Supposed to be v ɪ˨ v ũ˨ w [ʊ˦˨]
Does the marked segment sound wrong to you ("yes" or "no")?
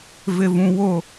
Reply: no